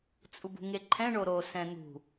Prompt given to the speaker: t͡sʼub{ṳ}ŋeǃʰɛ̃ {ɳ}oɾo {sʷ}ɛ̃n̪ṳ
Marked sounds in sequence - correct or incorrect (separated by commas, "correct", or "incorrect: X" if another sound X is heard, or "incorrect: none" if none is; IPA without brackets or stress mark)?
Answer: correct, correct, incorrect: s